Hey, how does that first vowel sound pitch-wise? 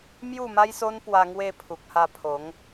falling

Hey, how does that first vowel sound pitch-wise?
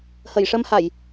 low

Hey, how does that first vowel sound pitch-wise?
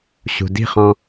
low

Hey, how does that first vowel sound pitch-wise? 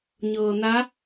low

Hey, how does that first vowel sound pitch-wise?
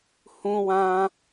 high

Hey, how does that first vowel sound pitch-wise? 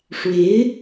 rising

